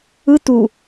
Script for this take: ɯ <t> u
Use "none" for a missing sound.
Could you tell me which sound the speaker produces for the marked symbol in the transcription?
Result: t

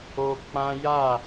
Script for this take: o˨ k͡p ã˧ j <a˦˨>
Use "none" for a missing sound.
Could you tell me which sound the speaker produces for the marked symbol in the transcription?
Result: a˦˨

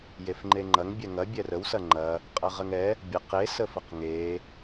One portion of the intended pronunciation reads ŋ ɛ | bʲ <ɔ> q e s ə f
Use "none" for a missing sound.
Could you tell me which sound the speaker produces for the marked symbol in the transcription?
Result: ə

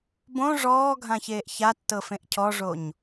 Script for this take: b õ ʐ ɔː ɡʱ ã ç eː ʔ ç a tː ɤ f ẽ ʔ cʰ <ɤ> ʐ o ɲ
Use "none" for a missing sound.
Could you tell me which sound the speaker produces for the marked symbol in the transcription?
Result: ɔ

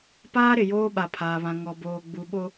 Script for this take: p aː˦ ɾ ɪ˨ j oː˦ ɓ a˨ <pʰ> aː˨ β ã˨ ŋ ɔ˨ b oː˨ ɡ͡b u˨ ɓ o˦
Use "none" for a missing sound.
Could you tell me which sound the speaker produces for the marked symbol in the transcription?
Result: pʰ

